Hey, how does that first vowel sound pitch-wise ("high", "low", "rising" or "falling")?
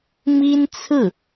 high